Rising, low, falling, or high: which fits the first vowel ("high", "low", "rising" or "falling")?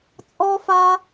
high